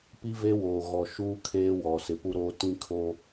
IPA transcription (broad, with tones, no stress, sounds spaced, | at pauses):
p i˦ v e˦ w oː˨ ɣ ɔ˨ ʃ uː˦ kʰ eː˦ w ɔ˨ s ɪ˨ p u˦ ɾ oː˦ t ĩ˦ kʰ o˦